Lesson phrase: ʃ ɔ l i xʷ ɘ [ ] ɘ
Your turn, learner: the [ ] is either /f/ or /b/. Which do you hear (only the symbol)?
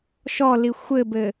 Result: b